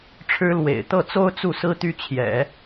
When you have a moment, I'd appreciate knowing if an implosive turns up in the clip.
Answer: no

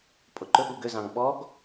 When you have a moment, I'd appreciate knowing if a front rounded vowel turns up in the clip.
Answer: yes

